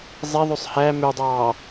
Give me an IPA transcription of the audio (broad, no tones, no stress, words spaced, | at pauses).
zˤeðˤøsˤ hæ mødˤɑː